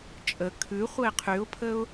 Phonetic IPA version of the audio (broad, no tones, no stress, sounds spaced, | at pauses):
t͡ʃʼ ə kʰ ʉ χʷ ə ɪ̯ qʰ y ʊ̯ pʰ ə ʊ̯